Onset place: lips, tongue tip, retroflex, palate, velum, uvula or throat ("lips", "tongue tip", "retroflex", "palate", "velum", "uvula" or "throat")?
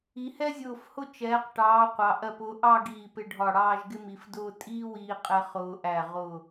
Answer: throat